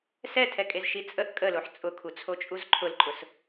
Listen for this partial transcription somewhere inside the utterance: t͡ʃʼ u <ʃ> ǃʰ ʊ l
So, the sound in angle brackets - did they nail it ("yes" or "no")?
no